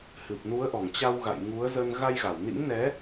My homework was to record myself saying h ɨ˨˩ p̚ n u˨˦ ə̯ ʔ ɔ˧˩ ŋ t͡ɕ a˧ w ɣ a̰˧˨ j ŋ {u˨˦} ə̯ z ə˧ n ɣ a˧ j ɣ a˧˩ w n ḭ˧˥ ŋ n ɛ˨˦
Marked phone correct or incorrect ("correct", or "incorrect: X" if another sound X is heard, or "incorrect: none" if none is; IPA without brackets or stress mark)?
correct